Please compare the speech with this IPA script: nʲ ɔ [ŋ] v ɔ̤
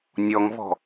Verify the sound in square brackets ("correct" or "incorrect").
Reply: correct